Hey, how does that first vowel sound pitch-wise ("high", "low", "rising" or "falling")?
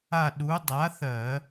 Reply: falling